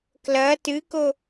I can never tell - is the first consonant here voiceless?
yes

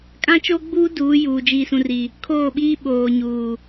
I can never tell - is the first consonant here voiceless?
yes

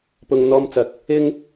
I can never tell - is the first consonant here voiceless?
yes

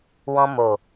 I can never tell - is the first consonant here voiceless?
no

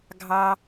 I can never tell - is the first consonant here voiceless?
no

